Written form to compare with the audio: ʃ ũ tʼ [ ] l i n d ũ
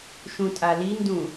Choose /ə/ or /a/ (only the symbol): a